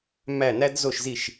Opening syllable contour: falling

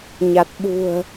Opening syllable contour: low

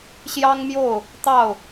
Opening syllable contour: high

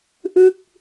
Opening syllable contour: falling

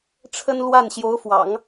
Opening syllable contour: high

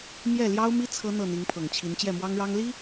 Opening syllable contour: falling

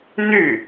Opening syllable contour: falling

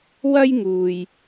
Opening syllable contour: high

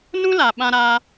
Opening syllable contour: high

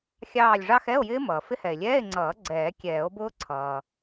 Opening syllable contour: falling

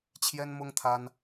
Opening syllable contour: high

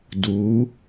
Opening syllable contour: rising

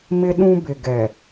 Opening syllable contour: high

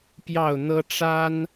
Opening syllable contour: falling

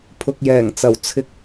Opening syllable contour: low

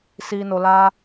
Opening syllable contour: low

